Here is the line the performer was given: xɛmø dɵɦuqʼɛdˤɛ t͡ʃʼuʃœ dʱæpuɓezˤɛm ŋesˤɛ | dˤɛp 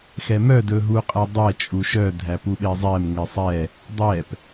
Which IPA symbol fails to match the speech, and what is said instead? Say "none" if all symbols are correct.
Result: ø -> œ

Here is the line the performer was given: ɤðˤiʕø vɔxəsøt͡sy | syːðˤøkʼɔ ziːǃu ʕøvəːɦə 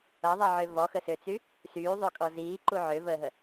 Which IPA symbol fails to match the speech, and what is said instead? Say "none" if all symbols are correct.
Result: none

